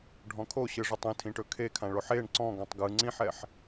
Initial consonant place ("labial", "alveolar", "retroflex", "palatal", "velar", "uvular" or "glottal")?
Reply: retroflex